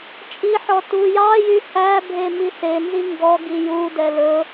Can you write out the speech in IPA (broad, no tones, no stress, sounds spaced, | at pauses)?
t͡ʃʼ i ħ ɔ t u j ɑ j y h æ bʱ e m i s e n z i ŋ ɡ ɔ ɡ i j u d ɛ l ɵ